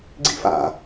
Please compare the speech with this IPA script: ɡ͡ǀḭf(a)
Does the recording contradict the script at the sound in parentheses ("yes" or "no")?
yes